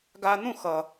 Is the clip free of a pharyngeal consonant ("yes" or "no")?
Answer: yes